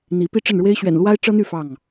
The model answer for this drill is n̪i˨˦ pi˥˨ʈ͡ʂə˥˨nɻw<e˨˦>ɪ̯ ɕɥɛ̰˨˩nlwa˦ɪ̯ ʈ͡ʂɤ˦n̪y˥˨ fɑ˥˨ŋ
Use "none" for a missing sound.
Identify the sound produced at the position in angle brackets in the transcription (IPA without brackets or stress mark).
e˦